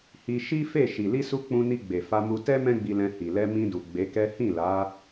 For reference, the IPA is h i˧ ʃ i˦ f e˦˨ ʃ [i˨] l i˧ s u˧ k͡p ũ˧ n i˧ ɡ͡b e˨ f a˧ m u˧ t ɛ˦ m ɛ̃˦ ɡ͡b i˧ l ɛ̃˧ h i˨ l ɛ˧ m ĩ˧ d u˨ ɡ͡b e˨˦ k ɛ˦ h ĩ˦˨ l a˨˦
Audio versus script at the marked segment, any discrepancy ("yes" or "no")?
no